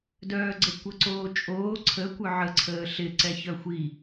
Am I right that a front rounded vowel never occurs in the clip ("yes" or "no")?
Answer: no